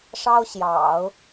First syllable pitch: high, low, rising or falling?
high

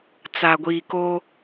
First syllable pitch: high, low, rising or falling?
low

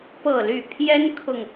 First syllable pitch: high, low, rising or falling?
falling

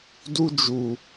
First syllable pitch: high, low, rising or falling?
high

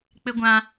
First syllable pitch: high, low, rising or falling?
high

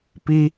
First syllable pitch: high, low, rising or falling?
high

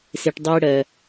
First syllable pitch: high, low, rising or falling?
low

